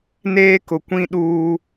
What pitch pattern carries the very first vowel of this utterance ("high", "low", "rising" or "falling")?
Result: high